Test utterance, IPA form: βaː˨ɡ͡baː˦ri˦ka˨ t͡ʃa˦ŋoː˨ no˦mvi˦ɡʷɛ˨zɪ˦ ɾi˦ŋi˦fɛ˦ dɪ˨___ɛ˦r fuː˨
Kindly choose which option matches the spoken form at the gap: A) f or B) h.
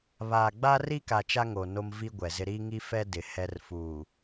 B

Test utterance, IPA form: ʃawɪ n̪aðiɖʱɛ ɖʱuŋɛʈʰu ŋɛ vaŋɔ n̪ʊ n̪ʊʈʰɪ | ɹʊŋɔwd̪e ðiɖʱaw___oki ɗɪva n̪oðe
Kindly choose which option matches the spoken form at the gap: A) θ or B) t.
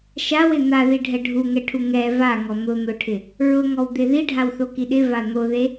A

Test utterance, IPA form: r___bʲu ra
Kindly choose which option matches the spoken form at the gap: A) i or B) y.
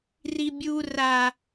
A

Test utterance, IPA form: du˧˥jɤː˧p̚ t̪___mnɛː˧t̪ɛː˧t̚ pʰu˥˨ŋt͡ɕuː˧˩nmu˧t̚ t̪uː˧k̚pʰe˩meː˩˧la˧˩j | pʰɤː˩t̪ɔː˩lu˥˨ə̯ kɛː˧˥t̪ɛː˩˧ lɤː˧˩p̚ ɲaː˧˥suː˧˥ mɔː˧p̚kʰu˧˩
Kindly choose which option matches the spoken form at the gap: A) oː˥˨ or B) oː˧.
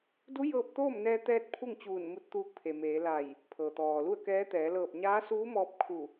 A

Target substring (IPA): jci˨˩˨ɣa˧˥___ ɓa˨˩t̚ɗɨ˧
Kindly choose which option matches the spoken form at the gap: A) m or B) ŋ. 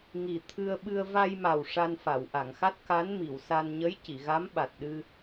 A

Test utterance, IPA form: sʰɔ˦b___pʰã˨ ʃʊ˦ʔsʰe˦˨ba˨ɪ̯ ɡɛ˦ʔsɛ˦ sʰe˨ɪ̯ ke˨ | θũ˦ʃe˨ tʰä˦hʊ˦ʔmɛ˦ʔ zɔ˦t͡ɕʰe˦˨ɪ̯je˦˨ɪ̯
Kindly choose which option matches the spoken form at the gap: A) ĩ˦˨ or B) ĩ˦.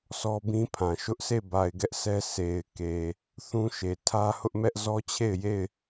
B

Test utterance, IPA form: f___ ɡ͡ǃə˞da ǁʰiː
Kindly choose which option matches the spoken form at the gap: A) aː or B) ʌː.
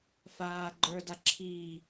A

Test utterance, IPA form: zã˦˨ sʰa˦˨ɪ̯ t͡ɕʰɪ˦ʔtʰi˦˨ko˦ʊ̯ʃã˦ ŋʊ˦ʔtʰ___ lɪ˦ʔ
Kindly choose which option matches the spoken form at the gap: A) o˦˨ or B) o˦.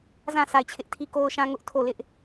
A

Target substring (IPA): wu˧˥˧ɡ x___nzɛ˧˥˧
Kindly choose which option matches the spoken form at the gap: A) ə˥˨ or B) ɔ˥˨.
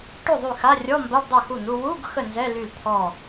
A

